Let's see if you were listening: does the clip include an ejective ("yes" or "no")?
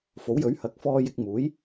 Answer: no